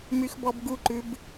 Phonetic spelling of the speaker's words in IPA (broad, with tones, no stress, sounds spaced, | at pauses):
m y˦ x b ɔ˦ b ɡ u˥˨ ǃ ʉ˦ b